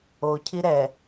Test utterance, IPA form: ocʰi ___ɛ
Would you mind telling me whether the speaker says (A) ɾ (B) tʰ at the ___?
A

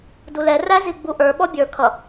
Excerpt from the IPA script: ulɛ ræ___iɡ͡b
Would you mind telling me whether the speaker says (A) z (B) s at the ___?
A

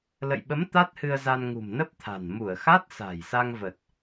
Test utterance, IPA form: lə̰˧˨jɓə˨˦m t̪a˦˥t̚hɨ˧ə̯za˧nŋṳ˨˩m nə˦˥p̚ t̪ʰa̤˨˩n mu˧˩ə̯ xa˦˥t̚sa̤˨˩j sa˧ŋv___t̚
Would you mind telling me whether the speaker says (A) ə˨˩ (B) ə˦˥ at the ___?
A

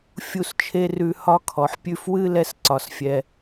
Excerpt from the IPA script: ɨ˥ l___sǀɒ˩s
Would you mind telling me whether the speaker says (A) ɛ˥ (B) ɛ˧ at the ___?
B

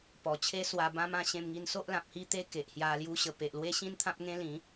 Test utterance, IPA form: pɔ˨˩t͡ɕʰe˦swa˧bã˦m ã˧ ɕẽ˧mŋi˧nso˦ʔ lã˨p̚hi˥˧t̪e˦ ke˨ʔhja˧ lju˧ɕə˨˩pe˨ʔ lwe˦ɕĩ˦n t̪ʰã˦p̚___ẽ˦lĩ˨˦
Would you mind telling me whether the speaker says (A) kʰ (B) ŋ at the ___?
B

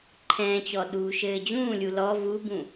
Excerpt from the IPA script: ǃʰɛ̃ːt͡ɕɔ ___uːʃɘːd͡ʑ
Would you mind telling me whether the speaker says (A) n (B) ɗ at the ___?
B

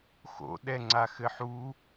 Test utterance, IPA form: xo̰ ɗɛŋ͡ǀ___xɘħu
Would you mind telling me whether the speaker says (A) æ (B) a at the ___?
B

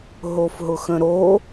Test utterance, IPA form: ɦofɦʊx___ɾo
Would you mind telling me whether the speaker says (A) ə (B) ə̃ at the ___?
B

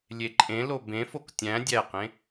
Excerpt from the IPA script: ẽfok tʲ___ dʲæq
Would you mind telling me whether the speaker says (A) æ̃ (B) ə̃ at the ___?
A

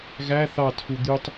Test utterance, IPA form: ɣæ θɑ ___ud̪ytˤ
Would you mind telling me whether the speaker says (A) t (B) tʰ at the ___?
B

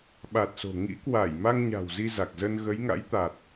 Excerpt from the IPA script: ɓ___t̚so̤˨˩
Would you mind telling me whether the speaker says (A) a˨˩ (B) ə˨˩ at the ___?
A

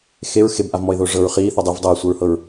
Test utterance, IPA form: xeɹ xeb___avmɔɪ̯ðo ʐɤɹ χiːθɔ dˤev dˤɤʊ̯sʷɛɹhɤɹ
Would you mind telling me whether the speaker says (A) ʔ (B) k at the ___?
A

